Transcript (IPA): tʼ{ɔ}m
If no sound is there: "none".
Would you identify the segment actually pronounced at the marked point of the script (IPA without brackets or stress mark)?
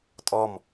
ɔ